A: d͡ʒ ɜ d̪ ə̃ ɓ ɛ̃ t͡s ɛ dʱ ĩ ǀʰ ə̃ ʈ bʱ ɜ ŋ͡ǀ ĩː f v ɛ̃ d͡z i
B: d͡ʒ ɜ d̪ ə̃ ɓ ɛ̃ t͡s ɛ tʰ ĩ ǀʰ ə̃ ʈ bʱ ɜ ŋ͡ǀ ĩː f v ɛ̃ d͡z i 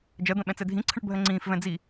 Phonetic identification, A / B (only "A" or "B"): A